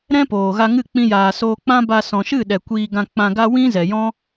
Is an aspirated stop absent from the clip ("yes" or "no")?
yes